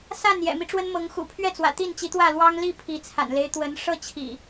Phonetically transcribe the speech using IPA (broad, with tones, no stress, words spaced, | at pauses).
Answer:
sa˥˨n jɛ̰˨˩mi˦ʈ͡ʂwə˦nmɤ˨˦ŋ xṵ˨˩pʰɥɛ˥˨t͡swä̰˨˩ t̪i˥˨nt͡ɕi˨˦t̪wä˥˨ lwɑ˦ŋli˥˨ pʰi˨˦ t͡sʰa̰˨˩nle˦ɪ̯ t̪wə˨˦n ʂɤ˥˨t͡ɕʰḭ˨˩